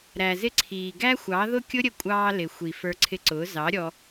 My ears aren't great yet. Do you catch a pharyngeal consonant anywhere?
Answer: no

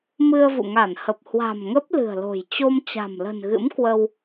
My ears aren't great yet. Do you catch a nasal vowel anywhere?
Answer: no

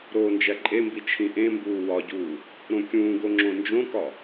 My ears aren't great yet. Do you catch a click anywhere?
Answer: yes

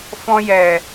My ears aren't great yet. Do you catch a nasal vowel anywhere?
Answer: yes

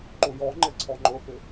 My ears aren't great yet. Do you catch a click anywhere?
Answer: yes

